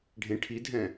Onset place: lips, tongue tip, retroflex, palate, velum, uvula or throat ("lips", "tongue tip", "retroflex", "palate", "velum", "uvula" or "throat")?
retroflex